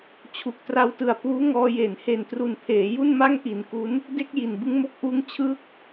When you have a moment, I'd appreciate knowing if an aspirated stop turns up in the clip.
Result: yes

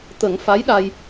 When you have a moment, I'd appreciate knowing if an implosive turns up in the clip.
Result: yes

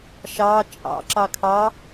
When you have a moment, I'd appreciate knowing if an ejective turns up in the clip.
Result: yes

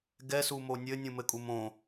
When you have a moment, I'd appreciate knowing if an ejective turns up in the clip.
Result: yes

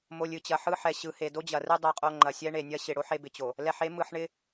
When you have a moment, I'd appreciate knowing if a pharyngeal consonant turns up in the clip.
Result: yes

